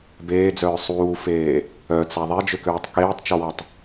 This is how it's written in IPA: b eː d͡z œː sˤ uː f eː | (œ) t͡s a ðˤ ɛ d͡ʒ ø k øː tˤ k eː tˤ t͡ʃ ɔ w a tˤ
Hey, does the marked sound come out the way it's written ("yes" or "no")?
yes